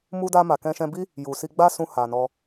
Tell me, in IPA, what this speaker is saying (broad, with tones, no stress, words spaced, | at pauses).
mu˧da˧ma˨ kɛ̃˧ʃɛ̃˧bi˦ | ju˨si˧ɡ͡ba˦ sũ˧ha˨nɔ˧